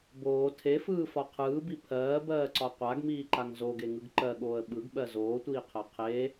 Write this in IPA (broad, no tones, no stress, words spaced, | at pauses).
boː tʰefɯːfɒ qʰɯːbi pʰɜːbɜːǀɒ qʷaɡmiːǃaŋ zoɡeŋɯɡ ǃɜɠoːə̯ ɓɯɡɓɜ zoːtʷiːqʰɜ qʰe